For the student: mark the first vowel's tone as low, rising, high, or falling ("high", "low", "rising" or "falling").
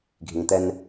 low